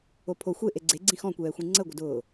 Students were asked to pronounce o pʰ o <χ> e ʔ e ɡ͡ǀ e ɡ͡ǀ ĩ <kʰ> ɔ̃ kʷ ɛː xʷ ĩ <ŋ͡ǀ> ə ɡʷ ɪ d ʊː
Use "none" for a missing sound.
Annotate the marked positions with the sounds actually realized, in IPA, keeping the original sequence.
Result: xʷ, x, ŋ͡ǀ

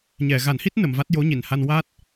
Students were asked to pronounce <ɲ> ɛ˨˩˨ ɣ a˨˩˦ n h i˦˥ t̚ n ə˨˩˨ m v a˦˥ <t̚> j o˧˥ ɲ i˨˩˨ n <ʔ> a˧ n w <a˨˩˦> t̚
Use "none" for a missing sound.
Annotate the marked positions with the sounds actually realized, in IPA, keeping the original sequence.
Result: ɲ, t̚, h, a˦˥

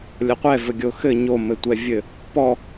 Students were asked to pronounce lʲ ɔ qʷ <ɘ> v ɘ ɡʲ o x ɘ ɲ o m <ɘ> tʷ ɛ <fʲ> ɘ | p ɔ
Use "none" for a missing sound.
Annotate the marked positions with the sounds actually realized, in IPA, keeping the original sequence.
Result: ɛ, ɘ, vʲ

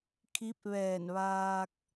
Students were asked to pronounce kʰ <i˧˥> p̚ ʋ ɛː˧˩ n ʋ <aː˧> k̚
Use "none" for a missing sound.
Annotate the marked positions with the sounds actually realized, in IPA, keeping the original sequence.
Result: i˧˥, aː˧

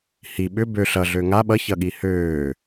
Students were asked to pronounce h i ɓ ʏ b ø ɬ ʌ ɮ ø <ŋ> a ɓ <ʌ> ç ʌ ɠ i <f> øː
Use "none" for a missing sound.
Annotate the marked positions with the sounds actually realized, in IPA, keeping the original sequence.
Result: ŋ, ʌ, h

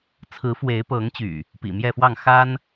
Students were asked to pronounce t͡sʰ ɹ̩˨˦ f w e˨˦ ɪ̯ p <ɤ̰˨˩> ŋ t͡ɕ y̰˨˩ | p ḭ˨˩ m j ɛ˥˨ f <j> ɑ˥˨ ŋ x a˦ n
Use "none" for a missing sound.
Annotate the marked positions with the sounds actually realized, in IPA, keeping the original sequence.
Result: ɤ˨˦, w

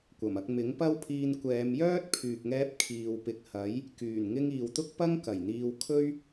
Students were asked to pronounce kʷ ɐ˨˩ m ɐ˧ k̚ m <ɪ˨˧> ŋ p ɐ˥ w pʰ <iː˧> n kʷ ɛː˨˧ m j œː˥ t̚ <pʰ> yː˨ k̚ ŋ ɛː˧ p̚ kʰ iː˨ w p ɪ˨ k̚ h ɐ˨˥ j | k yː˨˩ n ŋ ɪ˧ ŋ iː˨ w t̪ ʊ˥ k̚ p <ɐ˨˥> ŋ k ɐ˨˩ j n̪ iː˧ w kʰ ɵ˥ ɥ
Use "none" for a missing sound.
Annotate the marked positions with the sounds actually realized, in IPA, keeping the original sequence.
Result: ɪ˨˥, iː˧, pʰ, ɐ˥

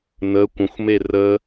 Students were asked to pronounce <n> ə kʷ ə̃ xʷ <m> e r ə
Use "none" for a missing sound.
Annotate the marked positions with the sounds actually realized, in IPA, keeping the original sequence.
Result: n, m

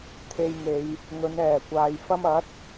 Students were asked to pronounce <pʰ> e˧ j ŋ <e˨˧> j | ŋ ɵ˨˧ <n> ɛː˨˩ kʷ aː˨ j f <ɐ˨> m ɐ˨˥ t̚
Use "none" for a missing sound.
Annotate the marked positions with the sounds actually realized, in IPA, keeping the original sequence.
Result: t̪ʰ, e˨˧, n, ɐ˥

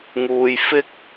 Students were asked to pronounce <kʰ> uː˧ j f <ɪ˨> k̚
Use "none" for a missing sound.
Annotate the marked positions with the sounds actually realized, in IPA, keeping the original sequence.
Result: ŋ, ɪ˥

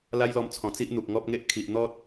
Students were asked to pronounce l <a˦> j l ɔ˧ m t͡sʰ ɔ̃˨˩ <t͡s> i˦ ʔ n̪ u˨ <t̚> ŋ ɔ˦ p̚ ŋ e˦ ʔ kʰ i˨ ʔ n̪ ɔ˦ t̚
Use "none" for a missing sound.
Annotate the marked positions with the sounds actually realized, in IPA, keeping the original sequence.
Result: a˦, t͡s, k̚

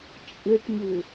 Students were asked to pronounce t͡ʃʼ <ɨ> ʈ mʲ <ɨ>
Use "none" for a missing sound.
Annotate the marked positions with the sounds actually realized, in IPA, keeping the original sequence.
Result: ɨ, ʉ

